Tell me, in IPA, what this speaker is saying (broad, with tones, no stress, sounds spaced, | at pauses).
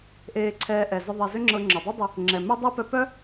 ʔ eː˧ ǀʰ ɛː˧ ʔ ɛ˩ z ʏ˧ ðˤ e˧ z ʏ˥ ŋ͡ǁ ɤ˧ ŋ͡ǁ œ˩ dˤ i˥ dˤ ʏ˧ | ŋ͡ǁ ɛ˩ m ʏ˥ dˤ e˥ p œ˧ p œ˥